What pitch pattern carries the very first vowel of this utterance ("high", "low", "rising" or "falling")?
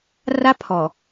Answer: high